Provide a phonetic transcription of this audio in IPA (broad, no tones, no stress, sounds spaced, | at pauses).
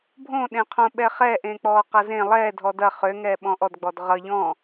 bʱ õ ɗ ẽ qʰ õ ɓ ɛ χ ɛː ʔ ẽː k͡p ɔː q ɐ z ẽ lˠ ɛː dʱ ɔ d ɐ χ ø ŋ ɛː ɓ ɔ̃ ʔ ɔ d ɡ͡b ɔ d ʁ ʌ ʎ ɔ̃